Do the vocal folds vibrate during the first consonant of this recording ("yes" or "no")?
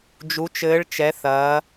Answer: yes